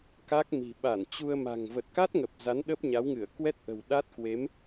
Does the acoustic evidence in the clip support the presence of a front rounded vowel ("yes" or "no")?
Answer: no